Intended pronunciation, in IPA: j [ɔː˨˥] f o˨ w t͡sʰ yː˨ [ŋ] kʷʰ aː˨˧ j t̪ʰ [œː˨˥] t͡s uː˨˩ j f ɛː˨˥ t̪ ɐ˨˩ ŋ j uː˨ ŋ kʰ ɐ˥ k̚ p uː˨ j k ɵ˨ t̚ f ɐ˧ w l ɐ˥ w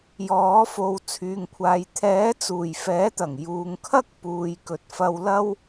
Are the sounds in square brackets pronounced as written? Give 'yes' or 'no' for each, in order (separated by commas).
yes, yes, no